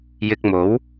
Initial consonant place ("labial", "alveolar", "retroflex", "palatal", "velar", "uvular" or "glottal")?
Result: palatal